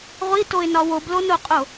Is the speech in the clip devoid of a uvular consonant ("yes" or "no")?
no